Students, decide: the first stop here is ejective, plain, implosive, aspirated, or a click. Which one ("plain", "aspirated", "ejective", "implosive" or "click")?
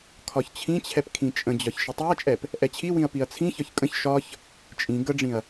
aspirated